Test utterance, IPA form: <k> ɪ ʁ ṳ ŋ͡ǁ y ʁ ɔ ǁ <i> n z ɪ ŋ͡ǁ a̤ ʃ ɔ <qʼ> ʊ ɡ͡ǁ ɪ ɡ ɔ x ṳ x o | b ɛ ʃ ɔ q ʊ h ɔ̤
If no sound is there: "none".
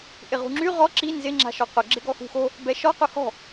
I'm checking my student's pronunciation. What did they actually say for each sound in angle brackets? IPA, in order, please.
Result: ʔ, i, q

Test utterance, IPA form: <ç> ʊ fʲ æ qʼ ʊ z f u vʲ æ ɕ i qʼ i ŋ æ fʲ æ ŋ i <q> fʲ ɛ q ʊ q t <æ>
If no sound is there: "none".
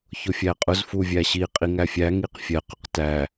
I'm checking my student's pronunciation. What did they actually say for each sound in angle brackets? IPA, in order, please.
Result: ç, q, æ

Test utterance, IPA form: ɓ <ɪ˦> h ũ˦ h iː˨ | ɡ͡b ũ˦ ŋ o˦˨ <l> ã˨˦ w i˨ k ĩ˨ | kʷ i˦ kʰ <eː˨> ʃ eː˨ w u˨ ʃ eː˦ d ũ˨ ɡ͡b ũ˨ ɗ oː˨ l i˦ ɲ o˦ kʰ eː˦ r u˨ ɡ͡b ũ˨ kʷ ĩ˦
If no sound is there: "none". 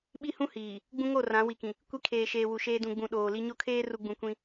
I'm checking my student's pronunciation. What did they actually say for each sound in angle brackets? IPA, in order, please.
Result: i˦, r, eː˨

